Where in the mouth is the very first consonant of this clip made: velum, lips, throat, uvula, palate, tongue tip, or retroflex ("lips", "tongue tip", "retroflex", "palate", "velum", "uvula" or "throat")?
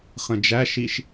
uvula